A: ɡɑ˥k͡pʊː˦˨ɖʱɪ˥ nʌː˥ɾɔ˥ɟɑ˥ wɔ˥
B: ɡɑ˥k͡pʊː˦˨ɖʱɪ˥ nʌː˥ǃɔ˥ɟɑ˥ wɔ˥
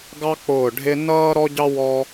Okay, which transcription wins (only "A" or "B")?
A